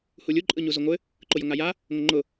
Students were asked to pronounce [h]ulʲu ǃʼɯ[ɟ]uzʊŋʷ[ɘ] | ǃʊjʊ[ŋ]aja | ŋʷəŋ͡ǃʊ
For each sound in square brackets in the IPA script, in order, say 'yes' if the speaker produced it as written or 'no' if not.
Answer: yes, no, yes, yes

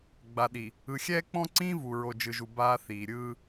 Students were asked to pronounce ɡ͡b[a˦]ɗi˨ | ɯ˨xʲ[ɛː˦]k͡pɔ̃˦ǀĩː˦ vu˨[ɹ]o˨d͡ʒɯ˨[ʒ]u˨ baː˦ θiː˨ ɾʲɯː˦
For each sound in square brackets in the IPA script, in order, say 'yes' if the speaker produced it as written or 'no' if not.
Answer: no, yes, yes, yes

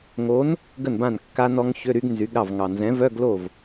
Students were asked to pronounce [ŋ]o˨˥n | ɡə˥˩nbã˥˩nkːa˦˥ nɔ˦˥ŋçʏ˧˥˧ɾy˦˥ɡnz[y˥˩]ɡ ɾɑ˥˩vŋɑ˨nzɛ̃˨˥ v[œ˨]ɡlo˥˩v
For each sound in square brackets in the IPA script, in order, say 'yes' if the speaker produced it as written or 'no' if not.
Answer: yes, no, no

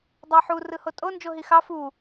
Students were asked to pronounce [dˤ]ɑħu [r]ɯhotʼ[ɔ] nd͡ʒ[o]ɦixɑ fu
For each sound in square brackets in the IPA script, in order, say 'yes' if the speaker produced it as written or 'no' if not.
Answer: yes, yes, no, yes

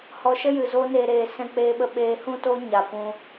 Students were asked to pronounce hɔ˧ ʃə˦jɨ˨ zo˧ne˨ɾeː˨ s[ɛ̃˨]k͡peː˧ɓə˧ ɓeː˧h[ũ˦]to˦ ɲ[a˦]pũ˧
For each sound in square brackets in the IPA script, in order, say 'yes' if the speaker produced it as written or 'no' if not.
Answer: no, yes, no

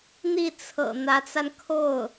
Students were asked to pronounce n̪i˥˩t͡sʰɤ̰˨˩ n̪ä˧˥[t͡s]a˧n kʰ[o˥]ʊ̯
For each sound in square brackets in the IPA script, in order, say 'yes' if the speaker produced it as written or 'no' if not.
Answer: yes, no

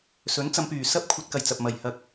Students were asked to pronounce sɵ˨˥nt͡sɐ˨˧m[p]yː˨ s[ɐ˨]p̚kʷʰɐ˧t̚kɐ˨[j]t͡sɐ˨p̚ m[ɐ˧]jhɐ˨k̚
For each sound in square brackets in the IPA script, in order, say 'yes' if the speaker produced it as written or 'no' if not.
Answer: yes, no, yes, no

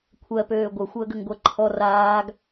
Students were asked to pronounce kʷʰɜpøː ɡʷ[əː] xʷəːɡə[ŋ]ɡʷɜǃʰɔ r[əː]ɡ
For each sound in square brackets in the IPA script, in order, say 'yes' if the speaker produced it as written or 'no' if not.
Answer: no, yes, no

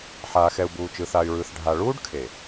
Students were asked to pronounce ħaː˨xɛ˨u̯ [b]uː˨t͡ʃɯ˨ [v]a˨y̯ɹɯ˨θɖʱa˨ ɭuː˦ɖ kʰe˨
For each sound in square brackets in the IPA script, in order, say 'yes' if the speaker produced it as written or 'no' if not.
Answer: yes, no

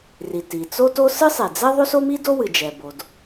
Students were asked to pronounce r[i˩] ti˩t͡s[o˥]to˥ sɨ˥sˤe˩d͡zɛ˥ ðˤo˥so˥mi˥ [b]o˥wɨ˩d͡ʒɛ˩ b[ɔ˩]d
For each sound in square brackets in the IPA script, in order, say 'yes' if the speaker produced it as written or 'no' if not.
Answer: yes, yes, no, no

